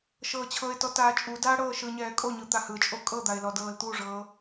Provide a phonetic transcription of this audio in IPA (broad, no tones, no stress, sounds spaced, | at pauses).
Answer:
ʃ ɤː t͡ɕʰ ɤ ɪ̯ t ɔ t aː t͡ʃʼ u d aː ɽ ɤː ʃ ɯ ɲ ɛː kʼ o ɲ ɯ t̪ a h ɯ t͡ʃʼ o kʼ ɤ d̪ a ɪ̯ l ɔ d ɤː l t̪ u ʐ ɤː